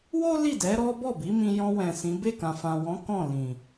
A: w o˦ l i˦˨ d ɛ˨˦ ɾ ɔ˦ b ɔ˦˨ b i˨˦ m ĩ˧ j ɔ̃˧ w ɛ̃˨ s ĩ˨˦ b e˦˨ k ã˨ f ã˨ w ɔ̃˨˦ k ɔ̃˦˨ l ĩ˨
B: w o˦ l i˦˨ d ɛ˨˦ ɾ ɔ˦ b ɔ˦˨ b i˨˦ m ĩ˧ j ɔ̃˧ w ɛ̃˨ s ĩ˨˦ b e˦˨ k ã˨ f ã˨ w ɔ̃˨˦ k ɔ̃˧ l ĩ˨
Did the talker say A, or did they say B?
A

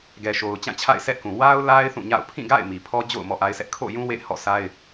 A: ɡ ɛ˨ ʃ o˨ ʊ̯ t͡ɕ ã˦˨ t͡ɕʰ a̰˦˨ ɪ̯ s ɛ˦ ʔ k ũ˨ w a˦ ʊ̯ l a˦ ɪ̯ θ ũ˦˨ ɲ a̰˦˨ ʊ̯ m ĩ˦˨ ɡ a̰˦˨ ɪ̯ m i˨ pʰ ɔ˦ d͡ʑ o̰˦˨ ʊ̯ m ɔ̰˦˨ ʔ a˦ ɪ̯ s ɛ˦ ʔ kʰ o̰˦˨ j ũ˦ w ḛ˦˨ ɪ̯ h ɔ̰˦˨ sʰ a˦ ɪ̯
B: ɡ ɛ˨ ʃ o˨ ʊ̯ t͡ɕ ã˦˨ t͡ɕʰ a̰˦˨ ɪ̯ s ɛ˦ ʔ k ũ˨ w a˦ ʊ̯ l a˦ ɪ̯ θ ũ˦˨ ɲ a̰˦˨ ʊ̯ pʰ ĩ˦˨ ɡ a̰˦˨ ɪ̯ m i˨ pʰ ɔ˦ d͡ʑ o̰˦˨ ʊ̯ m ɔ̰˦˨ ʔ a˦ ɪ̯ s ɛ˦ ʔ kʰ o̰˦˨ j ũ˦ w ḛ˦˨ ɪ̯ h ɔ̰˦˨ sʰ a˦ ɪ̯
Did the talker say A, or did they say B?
B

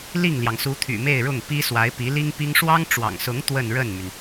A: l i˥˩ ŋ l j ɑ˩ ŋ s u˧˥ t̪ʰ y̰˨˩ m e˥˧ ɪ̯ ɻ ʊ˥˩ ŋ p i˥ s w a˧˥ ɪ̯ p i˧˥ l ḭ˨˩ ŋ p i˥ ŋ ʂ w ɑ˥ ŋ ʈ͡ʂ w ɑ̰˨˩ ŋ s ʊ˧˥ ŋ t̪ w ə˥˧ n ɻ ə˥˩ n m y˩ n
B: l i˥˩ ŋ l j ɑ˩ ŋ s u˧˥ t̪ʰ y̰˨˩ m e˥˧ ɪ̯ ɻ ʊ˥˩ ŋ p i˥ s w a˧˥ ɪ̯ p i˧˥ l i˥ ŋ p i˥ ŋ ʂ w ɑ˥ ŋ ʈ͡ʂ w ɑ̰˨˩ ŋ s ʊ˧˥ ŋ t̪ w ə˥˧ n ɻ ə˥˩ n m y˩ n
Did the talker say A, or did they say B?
B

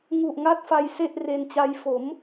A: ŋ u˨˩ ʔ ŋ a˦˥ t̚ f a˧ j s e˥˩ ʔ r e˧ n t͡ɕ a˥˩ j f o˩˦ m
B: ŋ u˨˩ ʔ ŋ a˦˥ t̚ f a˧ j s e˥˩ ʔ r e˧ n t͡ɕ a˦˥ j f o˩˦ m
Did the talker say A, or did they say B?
B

